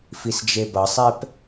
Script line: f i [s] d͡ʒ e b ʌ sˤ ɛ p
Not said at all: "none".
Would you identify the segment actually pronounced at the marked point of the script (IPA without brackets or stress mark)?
s